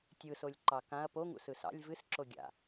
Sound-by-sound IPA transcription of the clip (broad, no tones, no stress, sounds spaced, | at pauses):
tʲ ɯ s o lʲ ǃ ɑ k ã ɐ̯ p o ŋ ṵ s ɯ s ɑ̰ lʲ v ɨ s ǁ o ɡʲ a̰